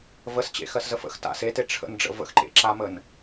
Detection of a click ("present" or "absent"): present